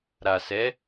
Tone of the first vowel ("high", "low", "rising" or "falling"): low